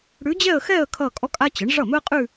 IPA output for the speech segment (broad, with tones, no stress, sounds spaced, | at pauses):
ɽ ʉ˧˥ d͡ʑ ɛ˥˧ ə̯ x ɛ˥˧ ə̯ kʰ ʌ˥˧ kʼ ɔ˥ kʼ a˥ t͡ɕ ə˩˥ ɳ ʐ ʌ˥˩ m ɵ˥ ə̯ qʼ ʉ˥˧